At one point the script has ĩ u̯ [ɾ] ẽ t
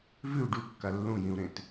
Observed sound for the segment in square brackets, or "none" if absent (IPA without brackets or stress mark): ɾ